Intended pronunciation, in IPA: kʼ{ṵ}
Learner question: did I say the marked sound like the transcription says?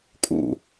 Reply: yes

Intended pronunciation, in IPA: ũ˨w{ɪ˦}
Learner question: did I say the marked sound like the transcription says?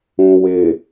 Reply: no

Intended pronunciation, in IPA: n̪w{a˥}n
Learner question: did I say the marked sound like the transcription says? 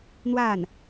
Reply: no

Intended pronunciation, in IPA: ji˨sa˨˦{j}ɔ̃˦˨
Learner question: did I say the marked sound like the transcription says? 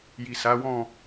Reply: no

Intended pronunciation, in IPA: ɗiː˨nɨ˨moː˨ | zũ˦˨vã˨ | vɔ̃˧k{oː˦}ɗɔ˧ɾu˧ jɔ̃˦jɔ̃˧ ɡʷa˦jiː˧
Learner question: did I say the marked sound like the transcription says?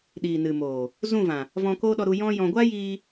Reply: yes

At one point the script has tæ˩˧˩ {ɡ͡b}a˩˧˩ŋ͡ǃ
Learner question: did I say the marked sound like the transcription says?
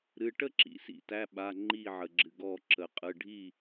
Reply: no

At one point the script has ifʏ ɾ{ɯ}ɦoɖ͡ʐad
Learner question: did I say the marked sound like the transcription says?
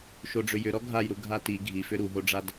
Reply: no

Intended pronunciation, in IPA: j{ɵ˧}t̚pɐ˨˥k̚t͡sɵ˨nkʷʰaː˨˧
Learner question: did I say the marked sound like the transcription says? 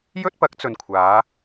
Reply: no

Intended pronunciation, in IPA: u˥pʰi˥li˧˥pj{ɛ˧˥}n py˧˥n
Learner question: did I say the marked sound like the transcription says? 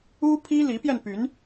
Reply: no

